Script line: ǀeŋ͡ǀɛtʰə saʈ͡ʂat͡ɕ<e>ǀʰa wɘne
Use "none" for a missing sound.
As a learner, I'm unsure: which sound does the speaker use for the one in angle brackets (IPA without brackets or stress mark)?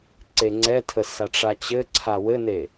ɘ